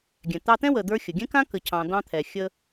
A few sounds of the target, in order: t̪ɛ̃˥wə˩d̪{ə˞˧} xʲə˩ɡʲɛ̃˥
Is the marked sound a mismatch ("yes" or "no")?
no